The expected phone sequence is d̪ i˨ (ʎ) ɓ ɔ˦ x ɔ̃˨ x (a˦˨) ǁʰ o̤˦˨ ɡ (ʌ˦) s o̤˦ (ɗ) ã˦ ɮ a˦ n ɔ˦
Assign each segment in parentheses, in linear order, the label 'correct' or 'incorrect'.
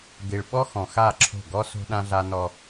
incorrect, correct, incorrect, correct

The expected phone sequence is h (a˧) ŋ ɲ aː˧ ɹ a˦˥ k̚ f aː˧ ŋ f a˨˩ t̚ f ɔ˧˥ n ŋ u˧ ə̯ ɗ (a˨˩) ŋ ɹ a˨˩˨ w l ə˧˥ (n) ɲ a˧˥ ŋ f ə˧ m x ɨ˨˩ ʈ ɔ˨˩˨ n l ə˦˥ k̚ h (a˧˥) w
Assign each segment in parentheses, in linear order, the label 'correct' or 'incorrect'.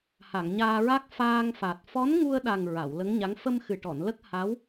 incorrect, correct, incorrect, correct

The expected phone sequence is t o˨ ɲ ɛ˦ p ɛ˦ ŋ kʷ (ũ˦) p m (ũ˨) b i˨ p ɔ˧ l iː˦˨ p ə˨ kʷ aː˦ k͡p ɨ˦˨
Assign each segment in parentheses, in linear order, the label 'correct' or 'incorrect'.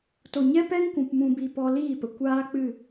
incorrect, correct

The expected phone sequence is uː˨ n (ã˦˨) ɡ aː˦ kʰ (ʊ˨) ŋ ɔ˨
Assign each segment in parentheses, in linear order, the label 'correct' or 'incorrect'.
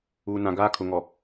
incorrect, correct

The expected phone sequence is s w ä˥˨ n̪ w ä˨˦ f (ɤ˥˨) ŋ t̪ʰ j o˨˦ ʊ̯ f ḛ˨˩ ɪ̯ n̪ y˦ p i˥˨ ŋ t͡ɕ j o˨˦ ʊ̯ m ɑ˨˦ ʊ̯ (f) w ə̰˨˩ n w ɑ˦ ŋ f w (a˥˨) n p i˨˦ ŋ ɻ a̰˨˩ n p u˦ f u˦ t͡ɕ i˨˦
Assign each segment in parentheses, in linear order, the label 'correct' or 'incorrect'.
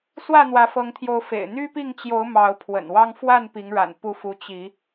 incorrect, incorrect, correct

